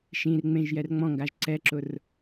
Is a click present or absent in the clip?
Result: present